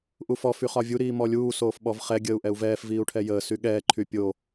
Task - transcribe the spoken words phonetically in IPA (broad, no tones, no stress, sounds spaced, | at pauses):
ʔ u f ɔ f y χ ɒ vʲ u ɾ iː m ɔ lʲ uː s oː f ɓ ɔ v χ ɛ ɡʲ əː u̯ ʔ ɛ u̯ v ɛː f v iː u̯ ʈʰ ɛ j əː s y ɠ ɛː ǃʰ y pʲ o